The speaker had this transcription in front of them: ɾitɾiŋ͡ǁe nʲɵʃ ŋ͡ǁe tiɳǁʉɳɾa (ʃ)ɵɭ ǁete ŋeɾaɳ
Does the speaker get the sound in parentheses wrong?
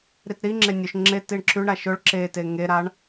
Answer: no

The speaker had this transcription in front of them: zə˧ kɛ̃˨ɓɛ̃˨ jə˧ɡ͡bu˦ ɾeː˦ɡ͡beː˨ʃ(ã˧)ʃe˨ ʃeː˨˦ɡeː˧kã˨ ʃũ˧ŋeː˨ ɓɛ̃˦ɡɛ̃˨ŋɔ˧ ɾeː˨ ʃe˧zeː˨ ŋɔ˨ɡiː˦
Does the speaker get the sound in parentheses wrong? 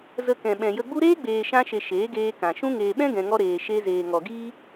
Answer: no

